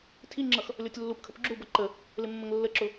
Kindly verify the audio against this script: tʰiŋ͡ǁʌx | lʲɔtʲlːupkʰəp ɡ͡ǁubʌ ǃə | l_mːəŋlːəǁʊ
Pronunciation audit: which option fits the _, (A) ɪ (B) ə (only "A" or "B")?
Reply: A